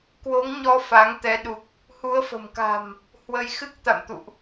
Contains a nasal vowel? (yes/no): no